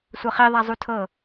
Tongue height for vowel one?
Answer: mid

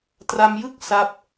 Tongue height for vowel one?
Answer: low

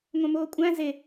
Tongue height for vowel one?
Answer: low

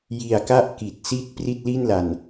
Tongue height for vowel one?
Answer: high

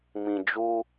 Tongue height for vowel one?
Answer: high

